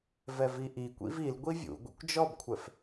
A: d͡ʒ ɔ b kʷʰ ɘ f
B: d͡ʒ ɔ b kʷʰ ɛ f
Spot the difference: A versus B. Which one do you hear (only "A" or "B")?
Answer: B